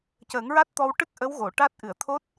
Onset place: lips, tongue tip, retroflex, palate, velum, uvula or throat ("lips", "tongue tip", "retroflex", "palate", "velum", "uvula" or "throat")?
palate